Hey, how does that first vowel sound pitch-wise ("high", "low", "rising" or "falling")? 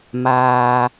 low